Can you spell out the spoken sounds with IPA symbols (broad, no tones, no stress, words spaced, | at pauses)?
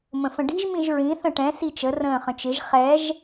mə̃fə̃ɖi̤ʒ mĩʒɹĩ θə̃ʈɛ̃ sit͡ʃə rə̃ːχə̃t͡ʃɪʒ χɛʒ